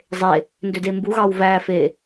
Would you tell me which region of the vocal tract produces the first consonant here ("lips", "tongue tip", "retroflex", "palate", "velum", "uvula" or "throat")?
tongue tip